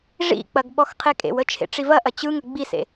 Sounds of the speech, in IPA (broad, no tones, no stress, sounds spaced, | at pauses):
ʐ ḭ k͡p ɐ ɡ ɓ ɔ x qʰ e kʼ ḛ w ə t͡ʃʰ ḛ ʈ͡ʂ i v ɐ ʔ ɐ t͡ɕ ɯ ŋ ə ɡ͡b i s ḛ